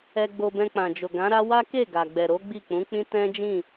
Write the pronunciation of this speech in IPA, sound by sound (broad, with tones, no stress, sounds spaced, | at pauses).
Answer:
ɛ˧ ɡ͡b o˧ b ɛ̃˧ k͡p ã˨ d͡ʒ o˨ ɡ ã˨˦ ɾ a˦ w a˦ k e˦˨ ɡ a˨ ɡ͡b ɛ˨ ɾ o˨˦ ɡ͡b i˦˨ k͡p ũ˨˦ k͡p ĩ˦ t ɛ̃˦ d͡ʒ ĩ˦˨